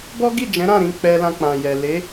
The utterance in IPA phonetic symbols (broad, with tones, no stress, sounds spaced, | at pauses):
b ɔ˦ ɡ i˦˨ d͡ʒ ɛ̃˨˦ ɾ ã˦˨ ɾ ĩ˨˦ k͡p ɛ˧ l ã˧ k͡p ã˨ j ɛ˨ l e˨˦